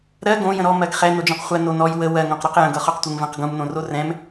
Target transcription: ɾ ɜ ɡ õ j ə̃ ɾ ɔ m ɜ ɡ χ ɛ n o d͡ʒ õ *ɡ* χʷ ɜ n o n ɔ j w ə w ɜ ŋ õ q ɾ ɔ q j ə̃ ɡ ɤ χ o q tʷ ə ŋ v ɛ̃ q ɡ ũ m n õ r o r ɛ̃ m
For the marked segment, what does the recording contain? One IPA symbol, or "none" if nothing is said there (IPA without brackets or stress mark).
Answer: q